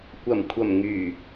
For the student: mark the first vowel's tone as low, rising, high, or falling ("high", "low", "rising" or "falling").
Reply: low